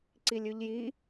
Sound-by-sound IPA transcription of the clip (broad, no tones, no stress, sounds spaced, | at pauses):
ǀ i lʲ ʉ ʎ j i